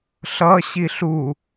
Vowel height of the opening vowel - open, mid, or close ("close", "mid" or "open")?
mid